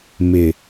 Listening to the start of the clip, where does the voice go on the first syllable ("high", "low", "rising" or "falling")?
low